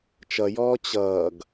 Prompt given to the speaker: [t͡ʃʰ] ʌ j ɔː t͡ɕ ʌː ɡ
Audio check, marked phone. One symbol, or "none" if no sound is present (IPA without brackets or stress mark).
t͡ʃ